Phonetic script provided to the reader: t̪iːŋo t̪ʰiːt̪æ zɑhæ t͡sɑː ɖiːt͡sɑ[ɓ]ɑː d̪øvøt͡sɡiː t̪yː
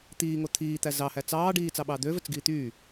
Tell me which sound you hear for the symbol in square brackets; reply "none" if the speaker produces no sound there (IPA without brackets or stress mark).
ɓ